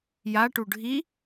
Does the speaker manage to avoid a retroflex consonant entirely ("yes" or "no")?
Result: no